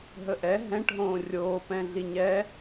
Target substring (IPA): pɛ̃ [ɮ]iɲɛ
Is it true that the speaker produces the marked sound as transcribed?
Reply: yes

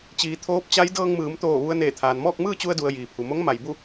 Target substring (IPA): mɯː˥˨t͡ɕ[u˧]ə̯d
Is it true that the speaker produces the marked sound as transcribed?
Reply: yes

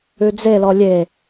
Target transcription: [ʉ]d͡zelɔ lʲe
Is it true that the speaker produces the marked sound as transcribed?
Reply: yes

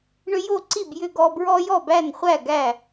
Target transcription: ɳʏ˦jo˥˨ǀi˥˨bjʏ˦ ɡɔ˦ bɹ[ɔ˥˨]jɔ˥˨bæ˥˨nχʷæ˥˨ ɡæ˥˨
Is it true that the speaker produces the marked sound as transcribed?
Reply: no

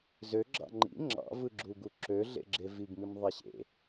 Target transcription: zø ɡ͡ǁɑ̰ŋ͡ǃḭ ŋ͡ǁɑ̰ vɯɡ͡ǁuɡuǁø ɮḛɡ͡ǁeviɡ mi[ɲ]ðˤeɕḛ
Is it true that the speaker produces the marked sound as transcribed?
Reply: no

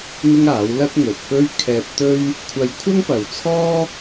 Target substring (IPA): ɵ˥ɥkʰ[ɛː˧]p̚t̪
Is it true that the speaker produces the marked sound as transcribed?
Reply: yes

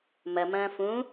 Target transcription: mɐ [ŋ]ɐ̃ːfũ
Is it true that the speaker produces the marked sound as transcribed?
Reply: no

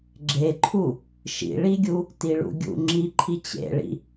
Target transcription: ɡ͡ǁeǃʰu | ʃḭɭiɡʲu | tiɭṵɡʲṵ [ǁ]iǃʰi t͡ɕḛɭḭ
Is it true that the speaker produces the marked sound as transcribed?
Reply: no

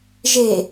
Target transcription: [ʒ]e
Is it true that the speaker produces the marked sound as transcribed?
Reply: yes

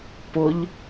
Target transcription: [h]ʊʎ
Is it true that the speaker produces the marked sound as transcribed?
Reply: no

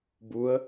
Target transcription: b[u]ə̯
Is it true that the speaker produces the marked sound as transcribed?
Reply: yes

